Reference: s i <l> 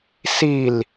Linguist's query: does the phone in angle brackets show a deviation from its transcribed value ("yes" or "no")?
no